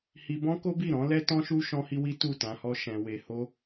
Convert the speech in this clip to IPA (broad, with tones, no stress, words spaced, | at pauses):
hi˧bɔ̃˦ ko˦bi˦˨ ɾɔ̃˨˦ lɛ˦tɔ̃˦ʃu˦ ʃɔ̃˦hi˦wi˦ tu˦˨tã˧hɔ˦ ʃɛ̃˧we˧ho˦